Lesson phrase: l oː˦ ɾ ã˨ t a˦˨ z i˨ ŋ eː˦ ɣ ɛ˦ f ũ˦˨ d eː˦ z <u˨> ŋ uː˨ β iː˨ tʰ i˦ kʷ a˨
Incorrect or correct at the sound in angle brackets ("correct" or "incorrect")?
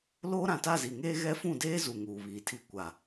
correct